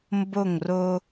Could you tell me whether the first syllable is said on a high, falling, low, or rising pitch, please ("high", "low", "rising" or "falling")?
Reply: falling